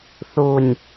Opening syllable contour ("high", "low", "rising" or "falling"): low